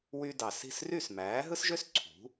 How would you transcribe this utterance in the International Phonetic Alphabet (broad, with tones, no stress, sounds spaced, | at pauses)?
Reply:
w y˧ d ɑ˩ s i̤˥˩ s r y˥˩ s m æː˩˥ ɦ ɯ˥ s ʒ ø˥ s ǀʰ ṳ˩˥